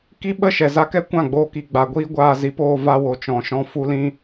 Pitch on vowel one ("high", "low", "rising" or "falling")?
high